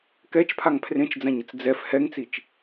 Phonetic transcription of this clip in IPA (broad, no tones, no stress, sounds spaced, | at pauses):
k ɛ t͡ʃ pʰ a ŋ pʰ r ẽ t͡ʃ d͡z ã ɲ ə t͡s d͡z ɛ f h ɛ ŋ t͡s i t͡ʃ